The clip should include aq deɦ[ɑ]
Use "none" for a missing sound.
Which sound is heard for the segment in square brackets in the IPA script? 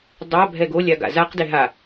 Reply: a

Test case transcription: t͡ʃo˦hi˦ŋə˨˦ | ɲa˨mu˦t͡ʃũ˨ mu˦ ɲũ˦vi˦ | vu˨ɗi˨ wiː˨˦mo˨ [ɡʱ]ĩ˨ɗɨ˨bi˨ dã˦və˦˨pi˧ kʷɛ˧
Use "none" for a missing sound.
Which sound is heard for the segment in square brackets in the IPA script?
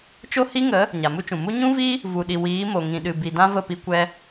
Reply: ŋ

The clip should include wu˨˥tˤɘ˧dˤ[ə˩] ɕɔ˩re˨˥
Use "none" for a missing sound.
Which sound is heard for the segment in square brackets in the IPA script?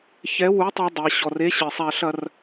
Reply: ɛ˩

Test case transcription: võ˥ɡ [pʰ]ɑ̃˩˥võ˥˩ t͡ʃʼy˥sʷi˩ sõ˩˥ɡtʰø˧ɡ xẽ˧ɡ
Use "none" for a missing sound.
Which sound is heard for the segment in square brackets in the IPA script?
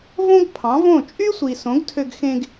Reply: pʰ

